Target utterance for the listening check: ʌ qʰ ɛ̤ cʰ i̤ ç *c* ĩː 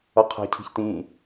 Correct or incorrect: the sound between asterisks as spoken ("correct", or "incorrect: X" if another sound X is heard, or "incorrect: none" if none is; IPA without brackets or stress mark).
incorrect: t